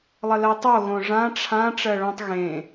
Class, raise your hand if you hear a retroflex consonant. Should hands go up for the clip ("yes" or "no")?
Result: yes